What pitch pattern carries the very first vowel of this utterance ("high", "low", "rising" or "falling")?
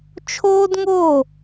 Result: high